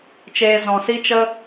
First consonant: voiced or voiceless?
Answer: voiceless